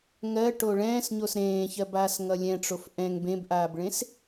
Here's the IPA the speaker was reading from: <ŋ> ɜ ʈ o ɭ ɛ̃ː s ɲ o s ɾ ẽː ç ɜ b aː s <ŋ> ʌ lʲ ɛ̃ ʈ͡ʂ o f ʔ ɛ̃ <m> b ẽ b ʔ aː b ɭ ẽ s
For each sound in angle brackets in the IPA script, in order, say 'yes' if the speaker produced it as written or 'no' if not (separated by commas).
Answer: yes, yes, no